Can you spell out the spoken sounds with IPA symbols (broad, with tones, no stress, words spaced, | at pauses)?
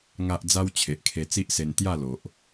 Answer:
ŋa˦ʔ d͡za˦wt͡ɕʰe˨ʔkʰe˧ t͡si˦ʔse˧n t̪ja˥˧lo˨ʔ